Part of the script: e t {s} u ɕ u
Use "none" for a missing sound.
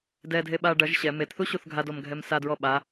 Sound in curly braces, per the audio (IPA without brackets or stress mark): θ